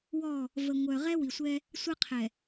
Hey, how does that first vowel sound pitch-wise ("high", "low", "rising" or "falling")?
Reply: falling